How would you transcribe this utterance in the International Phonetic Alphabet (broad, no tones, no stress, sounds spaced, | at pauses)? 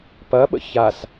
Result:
p ɐ ɓ ə̰ ç a s